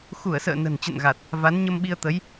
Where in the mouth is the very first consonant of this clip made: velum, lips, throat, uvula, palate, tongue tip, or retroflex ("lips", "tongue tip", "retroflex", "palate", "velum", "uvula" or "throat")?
velum